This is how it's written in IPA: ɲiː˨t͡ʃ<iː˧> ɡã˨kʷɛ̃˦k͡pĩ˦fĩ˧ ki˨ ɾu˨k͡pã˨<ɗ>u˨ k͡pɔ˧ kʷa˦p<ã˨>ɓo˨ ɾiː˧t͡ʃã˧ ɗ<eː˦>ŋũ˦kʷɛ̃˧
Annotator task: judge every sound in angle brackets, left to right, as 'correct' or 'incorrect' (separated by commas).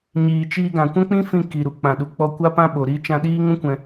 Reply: correct, correct, incorrect, incorrect